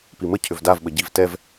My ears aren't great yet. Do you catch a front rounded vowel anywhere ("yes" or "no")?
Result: yes